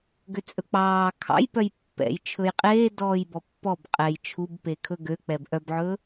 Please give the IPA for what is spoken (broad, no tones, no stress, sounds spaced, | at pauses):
ɡ ø t͡sʼ ɵ k͡p ɑː kʰ ɑ̰ j p œ j pː ɛ̰ j t͡ʃʰ ɵ j qʼ eː d ɔː j b ɔ pː ɔ b qʼ ɛ j t͡ʃʰ u b p e kʰ ɵ ɡ ø k͡p ɛ b ʔ œ b ʕ ɵː